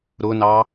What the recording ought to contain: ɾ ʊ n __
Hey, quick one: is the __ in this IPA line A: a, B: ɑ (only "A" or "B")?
B